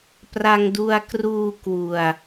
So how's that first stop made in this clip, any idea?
plain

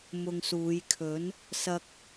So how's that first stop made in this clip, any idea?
aspirated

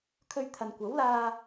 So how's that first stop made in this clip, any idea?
aspirated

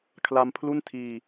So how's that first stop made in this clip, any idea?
aspirated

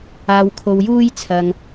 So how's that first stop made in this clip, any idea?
aspirated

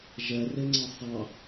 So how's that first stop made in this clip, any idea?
click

